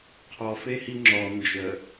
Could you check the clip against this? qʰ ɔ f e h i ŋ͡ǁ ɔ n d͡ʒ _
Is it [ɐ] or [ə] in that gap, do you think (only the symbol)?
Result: ə